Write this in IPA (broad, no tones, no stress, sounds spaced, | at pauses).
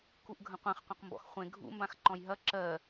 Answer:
k u ʔ ɡʱ ə̃ qʷ ẽ χ qʷ ɐ̃ q m b ɔ̰ x χʷ ẽ ɡʱ ṵ m b ã x ǃ ɔ̃ j ɦ ɐ ǁ ɜ